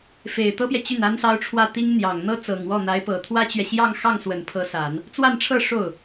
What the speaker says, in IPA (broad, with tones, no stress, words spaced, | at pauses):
fe˨˩ɪ̯t̪ɤ˥pjɛ˨ t͡ɕy˥˩na˥nsɑ˥ʊ̯ʈ͡ʂʰwä˥˩ t̪i˥ŋn̪jɑ˨˩ŋ n̪ɤ˥t͡sɤ˨˩ŋwɔ˥˩ n̪a˧˥ɪ̯pɤ˨˩ t̪ʰwä˥t͡ɕɥɛ˨ɕjɑ˥˧ŋxɑ˥˩ŋ swə˨˩npʰɤ˧˥sa˨˩˦n | t͡swa˥˧nʈ͡ʂʰɤ˥˧ ʂo˥˩ʊ̯